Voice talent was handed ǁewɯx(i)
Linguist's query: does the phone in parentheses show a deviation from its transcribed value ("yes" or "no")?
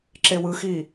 yes